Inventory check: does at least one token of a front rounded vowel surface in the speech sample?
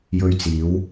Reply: no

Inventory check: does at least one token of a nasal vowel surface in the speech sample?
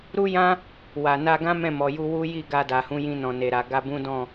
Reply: yes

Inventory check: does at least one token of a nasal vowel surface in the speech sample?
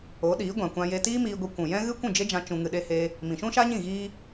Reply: yes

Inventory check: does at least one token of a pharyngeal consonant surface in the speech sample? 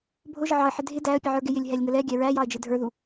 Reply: yes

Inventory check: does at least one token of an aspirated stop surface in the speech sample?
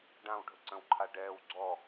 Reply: yes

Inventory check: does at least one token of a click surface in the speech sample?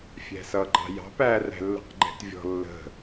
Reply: yes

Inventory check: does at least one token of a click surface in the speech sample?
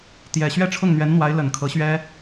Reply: no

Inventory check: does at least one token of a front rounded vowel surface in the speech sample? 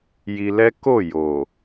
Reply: no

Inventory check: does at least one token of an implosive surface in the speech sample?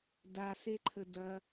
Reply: no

